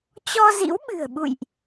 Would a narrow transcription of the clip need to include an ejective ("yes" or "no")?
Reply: no